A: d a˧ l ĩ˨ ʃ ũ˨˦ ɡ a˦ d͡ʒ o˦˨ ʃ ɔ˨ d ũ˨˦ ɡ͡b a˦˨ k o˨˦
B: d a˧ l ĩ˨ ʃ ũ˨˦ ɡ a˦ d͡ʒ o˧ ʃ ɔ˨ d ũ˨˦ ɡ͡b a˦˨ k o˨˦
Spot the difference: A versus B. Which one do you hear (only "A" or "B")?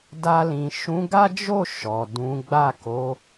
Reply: A